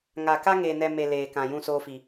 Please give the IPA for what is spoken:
ŋ a˨ k a˦ ŋ eː˨ n ɛ˨ m e˨ l eː˨ k ã˨ j ũ˧ s oː˧ f i˨

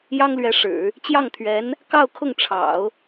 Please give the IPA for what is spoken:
j ɑ˥ ŋ l ɥ ɛ˧˥ ʂ ɻ̩˨˩˦ | t͡ɕ j ɑ˥˩ ŋ t̪ʰ ɥ ɛ˧˥ n | k ɑ˥˧ ʊ̯ kʰ ʊ˥˩ ŋ ʈ͡ʂʰ ɑ̰˨˩˦ ʊ̯

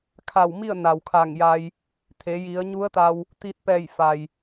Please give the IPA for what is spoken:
kʰ a˧˩ w m i˥˨ ə̯ n a˩ w kʰ a˧˩ ŋ j a˧ j | t̪ʰ e˩˧ j i˩˧ ə̯ ɲ u˧˥ ə̯ t̪ a˧ w | t̪ iː˧ t̚ p ɛː˧˩ j f a˩ j

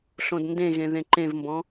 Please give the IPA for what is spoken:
ɬ õ d n d ẽ ɣ ẽ ð ẽ ǃ ẽ v m b ɔ̃

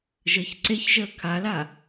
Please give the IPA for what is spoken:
ʒ əː ç ǀ e ç ʒ əː kʰ a l a

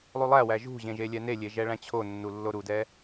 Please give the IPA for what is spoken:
lˠ u lˠ æ w æ ʒ ṳ ʑ ẽ ʒ e lʲ ɛ n e lʲ e ʒ ɛ ɭ æ̃ t͡ɕʰ o nː u lː o ɾ u d ɛ

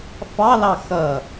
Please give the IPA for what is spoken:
f ɑ l ɑ x ʌ

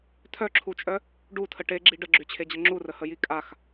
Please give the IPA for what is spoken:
tʰ œ ǁʰ u t͡ʃʼ œ | ɖ u tʰ ə ʈ e ɡ͡ǁ i ɖ ə ɡ͡ǁ y t͡ɕʰ e d͡ʑ ə ŋ͡ǁ u r ə h ə j i kʼ a x

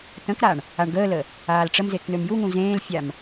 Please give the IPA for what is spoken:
t̪ ə̃ k ɾ a ɳ | a ɳ ɡ əː l ə | aː l ʈ͡ʂ ə m z e k n̪ ø m j u ŋ ũ z ẽː l fʲ a m

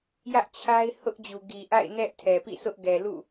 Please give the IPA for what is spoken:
j ä˦ ʔ t͡ɕʰ a˦ ɪ̯ h ʊ˦ ʔ d͡ʑ u˨ ɡ i˨ ʔ a̰˦˨ ɪ̯ n ɛ˦ ʔ tʰ ɛ˨ p ḭ˦˨ sʰ ʊ˦ ʔ ɡ ɛ˨ l ṵ˦˨

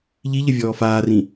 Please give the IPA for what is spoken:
ʎ i ʎ ə vʲ ɔː f aː r ĩ

